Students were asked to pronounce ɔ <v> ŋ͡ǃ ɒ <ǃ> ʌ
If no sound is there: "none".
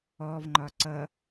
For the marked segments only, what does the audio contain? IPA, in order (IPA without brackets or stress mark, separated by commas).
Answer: v, ǀ